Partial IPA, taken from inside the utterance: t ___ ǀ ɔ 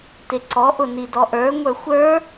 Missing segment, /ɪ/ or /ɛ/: ɪ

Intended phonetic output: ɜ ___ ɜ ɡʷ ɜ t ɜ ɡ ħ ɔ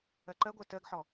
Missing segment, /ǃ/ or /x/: ǃ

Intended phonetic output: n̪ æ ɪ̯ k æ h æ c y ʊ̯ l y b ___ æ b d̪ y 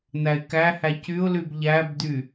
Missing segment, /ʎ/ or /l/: ʎ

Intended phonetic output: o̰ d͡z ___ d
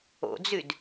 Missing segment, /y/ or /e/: y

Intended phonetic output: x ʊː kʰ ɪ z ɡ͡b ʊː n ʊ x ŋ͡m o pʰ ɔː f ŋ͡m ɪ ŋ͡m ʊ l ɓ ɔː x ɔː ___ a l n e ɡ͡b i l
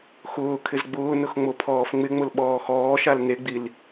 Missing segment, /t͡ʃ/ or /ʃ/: ʃ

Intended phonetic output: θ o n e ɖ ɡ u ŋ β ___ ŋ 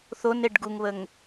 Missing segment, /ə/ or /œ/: ə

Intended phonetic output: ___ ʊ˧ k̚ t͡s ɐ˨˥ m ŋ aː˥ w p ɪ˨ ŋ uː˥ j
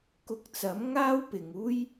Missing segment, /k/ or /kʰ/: k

